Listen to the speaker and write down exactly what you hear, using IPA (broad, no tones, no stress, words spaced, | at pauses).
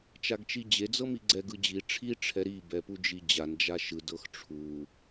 t͡ʃaɡt͡ʃid͡ʑe d͡zɤmiɡ͡ǀɛ ɡɯd͡ʑi ʈ͡ʂʰi ʈ͡ʂʰɛɾi bɛpud͡ʒid͡ʑan d͡ʒaʃɯd ɤxʈ͡ʂʰu